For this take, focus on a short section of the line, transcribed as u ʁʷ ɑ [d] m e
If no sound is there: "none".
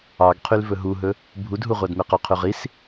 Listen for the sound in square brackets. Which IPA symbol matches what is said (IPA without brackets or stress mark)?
d